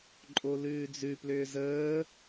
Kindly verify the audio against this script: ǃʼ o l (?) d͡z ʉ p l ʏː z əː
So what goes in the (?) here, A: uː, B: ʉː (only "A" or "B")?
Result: B